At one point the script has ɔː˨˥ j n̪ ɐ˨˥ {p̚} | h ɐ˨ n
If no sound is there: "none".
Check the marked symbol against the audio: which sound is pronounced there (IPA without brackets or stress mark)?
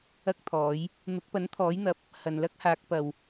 p̚